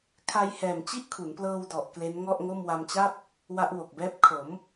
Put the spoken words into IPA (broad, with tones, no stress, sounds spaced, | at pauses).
kʰ a˧ j h ɛː˨˩ m t͡ɕ i˥˩ ʔ kʰ u˩˦ n p l ɤː˧ w d ɔ˨˩ ʔ k l e˦˥ n ŋ ɔ˥˩ ʔ ŋ o˥˩ m w a˧ m t͡ɕ a˥˩ p̚ | w a˦˥ ʔ w o˨˩ k̚ b ɛː˦˥ p̚ kʰ o˩˦ m